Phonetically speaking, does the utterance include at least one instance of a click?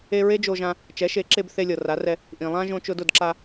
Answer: yes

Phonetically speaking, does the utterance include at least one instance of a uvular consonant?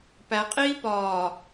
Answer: yes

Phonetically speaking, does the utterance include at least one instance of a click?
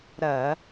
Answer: no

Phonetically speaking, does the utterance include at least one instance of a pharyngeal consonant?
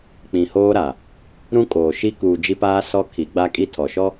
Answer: no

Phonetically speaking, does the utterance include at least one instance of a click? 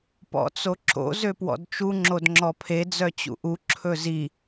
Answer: yes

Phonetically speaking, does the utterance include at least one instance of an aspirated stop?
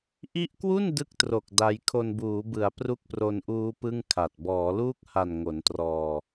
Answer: yes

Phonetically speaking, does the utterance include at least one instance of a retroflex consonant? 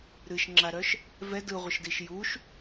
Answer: no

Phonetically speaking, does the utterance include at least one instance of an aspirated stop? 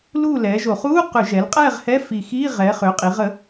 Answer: no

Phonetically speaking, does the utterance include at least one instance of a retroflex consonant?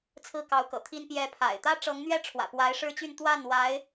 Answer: yes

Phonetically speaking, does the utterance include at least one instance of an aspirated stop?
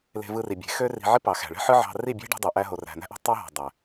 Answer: no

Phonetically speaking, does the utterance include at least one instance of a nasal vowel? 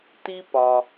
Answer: no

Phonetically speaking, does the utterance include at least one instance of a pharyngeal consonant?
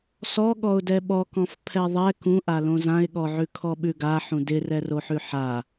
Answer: yes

